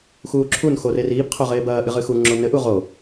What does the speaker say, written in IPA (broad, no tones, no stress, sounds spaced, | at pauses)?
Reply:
x uː ǁʰ u n x o r e r iː b qʰ o ʁ eː b ɐː ʔ ɨ ʁ ɨ x u ŋ͡ǁ o n ɘ ʔ u ʁ o